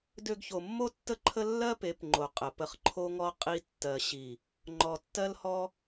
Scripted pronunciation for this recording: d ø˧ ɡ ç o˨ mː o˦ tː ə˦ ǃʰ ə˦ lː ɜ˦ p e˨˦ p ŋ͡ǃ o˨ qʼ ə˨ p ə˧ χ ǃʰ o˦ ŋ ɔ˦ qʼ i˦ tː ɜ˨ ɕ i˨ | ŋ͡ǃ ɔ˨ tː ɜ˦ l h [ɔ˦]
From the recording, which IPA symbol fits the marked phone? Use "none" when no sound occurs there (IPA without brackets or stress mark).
ɔ˦